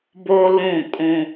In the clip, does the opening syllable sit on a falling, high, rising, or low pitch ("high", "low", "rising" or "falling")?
high